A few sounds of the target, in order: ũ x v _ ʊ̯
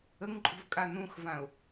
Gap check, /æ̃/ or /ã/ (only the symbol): ã